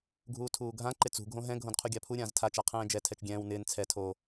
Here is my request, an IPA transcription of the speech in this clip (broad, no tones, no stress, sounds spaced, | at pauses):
ɡʱ uː tʰ uː ɡʱ ã ǃ ɪ t͡s ṳ ɡʱ õ ɦ ɛ̃ ɡʱ õ d qʰ u ɡʲ a pʰ u ɾʲ ãː z tʰ a t͡ʃ a qʰ ɛ̃ː d͡ʒ ɛ tʰ ɛ t͡ʃ ɡʲ ɛ̃ː w n ɪː n t͡sʰ ɛ tʰ o